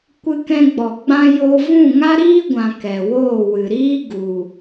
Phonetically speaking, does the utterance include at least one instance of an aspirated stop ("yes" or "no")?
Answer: no